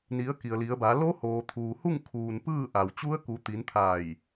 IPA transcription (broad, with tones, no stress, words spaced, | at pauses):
ni˩˧ə̯ ki˩ə̯li˩˧ə̯ba˩˧ lo˧˥hoː˩ t̪ʰuː˩hu˥˨ŋ kʰuː˩n pɯː˥˨ʔa˩w t͡ɕu˧˥ə̯ku˩˧t̪i˩˧n t̪ʰaː˧˩j